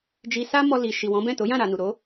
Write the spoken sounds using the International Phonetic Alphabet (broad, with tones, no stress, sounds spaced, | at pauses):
d͡ʒ i˧ s a˦ m ɔ˧ l i˨ ʃ i˨ w ɔ̃˨˦ b ɛ̃˦˨ t o˨˦ j ã˦˨ ɾ a˨ n u˨ ɾ o˨˦